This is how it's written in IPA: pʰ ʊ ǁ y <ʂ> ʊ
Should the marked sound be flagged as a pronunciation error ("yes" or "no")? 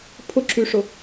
no